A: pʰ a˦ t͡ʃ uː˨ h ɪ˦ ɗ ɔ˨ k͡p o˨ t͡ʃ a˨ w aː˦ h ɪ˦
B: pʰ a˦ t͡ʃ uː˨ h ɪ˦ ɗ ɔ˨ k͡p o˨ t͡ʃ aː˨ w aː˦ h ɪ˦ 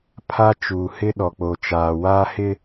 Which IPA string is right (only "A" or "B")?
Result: B